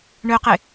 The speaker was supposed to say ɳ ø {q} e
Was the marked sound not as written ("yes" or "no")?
no